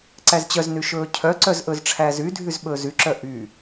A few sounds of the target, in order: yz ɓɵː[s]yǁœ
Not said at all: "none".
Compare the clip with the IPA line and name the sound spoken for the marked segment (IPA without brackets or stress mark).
z